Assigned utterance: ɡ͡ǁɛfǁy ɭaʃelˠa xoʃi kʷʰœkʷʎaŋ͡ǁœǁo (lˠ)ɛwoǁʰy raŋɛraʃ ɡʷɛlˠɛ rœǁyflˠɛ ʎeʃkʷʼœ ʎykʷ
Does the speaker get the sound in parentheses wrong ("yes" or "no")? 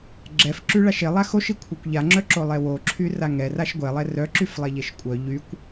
no